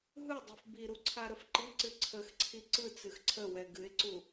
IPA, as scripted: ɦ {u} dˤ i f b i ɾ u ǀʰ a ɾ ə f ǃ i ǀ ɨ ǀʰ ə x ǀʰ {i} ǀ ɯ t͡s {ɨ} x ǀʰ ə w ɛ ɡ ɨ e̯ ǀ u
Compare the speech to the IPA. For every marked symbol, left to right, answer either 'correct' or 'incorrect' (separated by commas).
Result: incorrect, correct, correct